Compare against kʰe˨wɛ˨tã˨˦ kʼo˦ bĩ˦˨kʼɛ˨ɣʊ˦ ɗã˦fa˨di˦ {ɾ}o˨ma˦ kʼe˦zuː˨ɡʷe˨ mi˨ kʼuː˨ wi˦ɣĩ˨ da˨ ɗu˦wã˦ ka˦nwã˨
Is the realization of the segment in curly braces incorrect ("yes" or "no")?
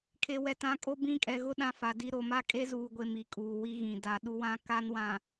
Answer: no